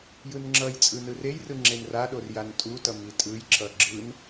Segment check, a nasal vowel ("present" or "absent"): absent